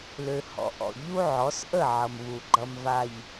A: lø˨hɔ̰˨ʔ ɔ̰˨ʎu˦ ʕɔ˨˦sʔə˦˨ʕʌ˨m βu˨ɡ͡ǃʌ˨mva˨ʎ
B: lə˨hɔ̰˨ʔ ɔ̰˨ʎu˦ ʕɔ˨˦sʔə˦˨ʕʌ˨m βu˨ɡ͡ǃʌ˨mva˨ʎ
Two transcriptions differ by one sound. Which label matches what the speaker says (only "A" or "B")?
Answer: A